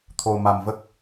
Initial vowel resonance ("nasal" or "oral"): oral